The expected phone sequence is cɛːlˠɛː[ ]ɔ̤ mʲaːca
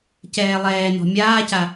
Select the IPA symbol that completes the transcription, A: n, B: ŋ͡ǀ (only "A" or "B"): A